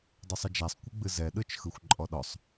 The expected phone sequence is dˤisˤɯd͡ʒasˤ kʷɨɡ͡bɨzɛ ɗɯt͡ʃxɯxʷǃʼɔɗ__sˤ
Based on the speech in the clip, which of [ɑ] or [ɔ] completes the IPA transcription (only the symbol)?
ɔ